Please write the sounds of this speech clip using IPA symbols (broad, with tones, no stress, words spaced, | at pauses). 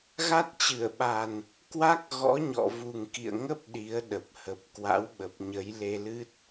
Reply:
ɣa˦˥t̚t͡ɕɨ˧˩ə̯ɓa˨˩n | kwa˦˥k̚ ɣɔ̰˧˥ɲɔ̰˧˨ vu˨˩ŋkḭ˧˨ə̯ŋə˦˥p̚ ɗi˨˦ə̯ ɗə˨˩p̚hə˨˩p̚ kwa̰˧˥wɓə˨˩p̚ɲə˨˦j le˧lɨ˦˥t̚